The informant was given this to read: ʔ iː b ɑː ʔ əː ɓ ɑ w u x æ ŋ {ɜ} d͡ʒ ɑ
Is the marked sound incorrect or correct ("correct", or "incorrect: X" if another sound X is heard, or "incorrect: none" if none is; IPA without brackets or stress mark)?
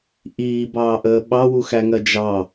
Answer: correct